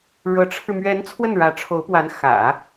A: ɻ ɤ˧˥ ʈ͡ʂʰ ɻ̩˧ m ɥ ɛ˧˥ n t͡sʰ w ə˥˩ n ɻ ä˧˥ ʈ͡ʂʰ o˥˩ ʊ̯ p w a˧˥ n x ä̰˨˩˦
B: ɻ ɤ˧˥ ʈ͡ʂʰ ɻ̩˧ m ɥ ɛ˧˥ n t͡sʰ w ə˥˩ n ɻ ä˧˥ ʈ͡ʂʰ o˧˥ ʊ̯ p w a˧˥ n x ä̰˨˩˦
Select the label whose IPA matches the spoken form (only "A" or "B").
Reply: B